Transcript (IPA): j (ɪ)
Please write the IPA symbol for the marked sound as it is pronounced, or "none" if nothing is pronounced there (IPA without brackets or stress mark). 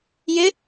ɪ